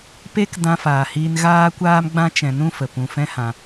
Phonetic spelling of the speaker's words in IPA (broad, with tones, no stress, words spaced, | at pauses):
pe˦kdã˧faː˨hiː˧n ɣaː˦kʷaː˦m ɡ͡bã˦t͡ʃɛ̃˧nũ˦fə˨ pũ˧fɛ̃˦hã˧